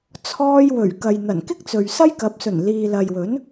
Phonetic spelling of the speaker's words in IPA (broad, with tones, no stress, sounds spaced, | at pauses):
t͡sʰ ɔː˧ j w ɵ˨˩ ɥ k ɐ˨ j n̪ ɐ˨˩ n k ɪ˥ k̚ t͡s ɵ˨ ɥ s ɐ˥ j k ɐ˨˥ p̚ s ɵ˨˩ n l iː˨ l ɐ˨ j w ɵ˨˥ n